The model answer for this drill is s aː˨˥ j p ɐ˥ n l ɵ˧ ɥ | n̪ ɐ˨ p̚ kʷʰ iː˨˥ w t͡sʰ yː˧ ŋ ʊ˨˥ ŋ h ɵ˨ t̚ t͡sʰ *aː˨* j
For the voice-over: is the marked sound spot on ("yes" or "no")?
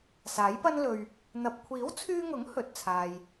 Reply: yes